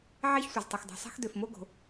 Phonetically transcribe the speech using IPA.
ʕ ɛ˥ ç sʷ ə˩ z tˤ ə˩ x dˤ o̤˩ sˤ ɛ̤˥ x d ø˩ f m o˥ ɡ o̤˩

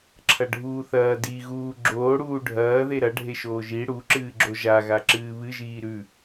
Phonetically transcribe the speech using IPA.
ǁʰ ɐ ɖʱ uː θ ɐː d i ɣ uː ɡ͡ǁ oː ɽ uː ɖʱ ɐː ð e ɾ ɐ ɖʱ e ʃ oː ʒ i ɽ u ǁ ɨː ɡ͡ǁ o ʒ a ɣ a ǁ ɨː β ɨ ʒ iː ɾ ʉ

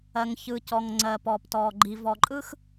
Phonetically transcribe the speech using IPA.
ɜ˨ ŋ ç ɯ˨ c ɔ˨ ŋ ŋ͡ǀ ɜ˨ p ɔ˨ p t ɔ˨ ɡ͡ǃ i˨ v ɔ˨ ǃʼ ɯ˦ x

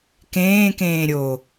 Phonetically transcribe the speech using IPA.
k ẽː k ẽː ɾʲ o

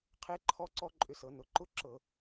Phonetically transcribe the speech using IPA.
qʰ e˦˥ ǃʰ ɔ˦˥ ǀ ɔ˦˥ ǃʼ ʏ˧ s ɤ˩˧ n ʊ˩˧ ǃ ʊ˦˥ ǁ ɤ˧˩˧

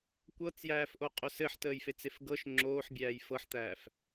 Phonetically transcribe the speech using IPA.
kʷ ɤ t͡s j æː f ʔ o qʼ ɵ s ɘ ħ t əː j f e t͡s e f ɡ ɤ ʃ ŋ͡ǁ oː ħ bʲ æː j f ɤ ħ t̪ æː f

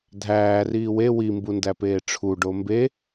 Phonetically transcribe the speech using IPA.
dʱ æː r iː w e w i m b u n d æ p eː ʈ͡ʂʰ u ɖ o m b e

